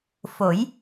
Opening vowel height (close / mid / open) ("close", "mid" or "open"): mid